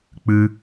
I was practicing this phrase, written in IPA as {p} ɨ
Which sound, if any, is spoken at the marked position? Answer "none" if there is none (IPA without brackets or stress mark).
k͡p